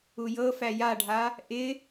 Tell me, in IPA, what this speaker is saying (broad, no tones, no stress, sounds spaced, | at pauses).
u j ɤ f æ j a ɖʱ a | ʔ ɪ